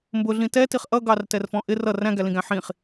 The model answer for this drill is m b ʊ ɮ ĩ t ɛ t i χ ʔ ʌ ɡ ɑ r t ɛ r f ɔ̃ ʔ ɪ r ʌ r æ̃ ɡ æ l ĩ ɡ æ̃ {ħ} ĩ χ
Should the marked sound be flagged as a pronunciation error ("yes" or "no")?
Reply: no